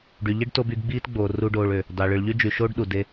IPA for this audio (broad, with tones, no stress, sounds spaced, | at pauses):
ɖ y˨ ʎ i˦ ɖ t o˧ b y˧ ɡ ɡ͡b iː˦ t ɡ͡b oː˨ r u˦ ɖ oː˧ ɭ ø˨ | d ɑ˨ ɭ ɯ˨ ɭ ʎ y˦ d͡ʒ y˨ ʃ oː˦ ɖ ɗ u˨ d e˧